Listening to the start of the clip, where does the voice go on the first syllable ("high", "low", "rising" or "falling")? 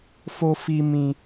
high